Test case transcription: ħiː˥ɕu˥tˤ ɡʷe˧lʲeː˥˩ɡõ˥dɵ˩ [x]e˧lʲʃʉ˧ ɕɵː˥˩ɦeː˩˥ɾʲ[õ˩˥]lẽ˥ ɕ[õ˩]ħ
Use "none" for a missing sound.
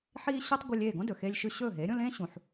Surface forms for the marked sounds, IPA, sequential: x, õ˥, ũ˩

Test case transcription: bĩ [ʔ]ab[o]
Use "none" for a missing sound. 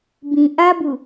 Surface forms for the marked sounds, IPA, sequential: ʔ, u

